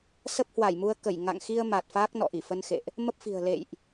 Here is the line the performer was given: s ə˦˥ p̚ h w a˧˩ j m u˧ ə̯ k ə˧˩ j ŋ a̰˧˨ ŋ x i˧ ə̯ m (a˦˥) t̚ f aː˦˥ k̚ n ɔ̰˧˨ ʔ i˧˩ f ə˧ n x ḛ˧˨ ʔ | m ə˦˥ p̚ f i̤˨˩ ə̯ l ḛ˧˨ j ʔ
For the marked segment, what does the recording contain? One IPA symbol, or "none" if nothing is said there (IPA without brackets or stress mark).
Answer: a˨˩